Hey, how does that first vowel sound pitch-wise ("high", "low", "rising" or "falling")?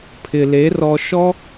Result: low